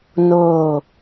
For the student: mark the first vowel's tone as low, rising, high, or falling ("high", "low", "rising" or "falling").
falling